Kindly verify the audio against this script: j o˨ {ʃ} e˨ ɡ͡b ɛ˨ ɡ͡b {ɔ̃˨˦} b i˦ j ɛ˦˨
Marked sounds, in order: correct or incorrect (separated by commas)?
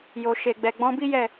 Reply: correct, correct